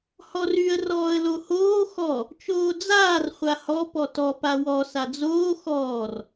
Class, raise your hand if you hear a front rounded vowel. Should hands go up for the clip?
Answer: yes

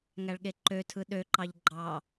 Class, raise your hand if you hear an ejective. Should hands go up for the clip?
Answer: no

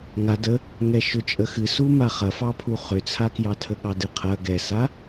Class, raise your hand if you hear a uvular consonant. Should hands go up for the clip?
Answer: yes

